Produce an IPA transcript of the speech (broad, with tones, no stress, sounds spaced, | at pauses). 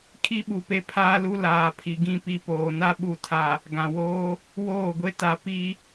kʰ i˦ ɓ u˨ p e˦ pʰ aː˦ l u˦ l aː˨ pʰ i˨ ɡ ĩ˦˨ p i˦ p oː˨ n a˦ ɓ u˨ tʰ a˨ | ɡ ã˨ w oː˦ | w oː˦˨ ɡʷ e˦ t a˨˦ p i˦